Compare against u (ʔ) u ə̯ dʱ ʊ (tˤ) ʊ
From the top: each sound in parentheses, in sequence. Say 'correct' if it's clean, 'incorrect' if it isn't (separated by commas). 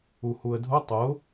incorrect, correct